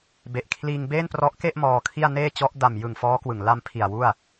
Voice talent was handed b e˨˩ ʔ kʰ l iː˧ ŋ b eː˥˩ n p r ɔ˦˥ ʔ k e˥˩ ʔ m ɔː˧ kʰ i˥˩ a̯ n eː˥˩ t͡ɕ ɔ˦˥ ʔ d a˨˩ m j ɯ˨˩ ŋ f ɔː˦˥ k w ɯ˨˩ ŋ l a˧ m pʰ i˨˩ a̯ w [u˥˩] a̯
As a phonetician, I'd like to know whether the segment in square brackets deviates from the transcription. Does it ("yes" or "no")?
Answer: no